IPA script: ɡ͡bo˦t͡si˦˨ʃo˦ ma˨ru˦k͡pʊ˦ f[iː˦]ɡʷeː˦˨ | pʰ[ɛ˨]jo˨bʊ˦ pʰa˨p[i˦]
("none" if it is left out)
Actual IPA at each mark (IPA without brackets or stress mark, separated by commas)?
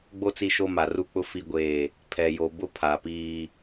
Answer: i˦, ɛ˨, iː˦